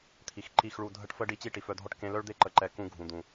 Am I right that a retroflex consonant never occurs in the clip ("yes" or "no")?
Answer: no